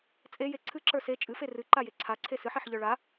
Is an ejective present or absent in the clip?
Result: present